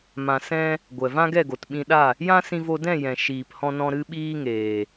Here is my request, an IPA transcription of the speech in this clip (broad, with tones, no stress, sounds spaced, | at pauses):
m ã˨ s ɛ̃˧ | ɡʷ ɛ˨ v ã˦ ɡ ɛ˦˨ ɡ o˨ t ɓ ĩ˧ ɗ a˦˨ | j ã˦ s ĩ˧ v o˧ d ɛ̃˦˨ j ɛ̃˨ ʃ iː˨ p h ɔ̃˧ n ɔ̃˧ ɾ ɨ˦ ɓ iː˦ ŋ eː˨